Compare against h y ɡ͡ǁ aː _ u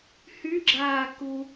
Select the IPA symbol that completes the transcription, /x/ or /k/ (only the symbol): k